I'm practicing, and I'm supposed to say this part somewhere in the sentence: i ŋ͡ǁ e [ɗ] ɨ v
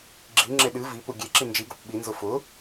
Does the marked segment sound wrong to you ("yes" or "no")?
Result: no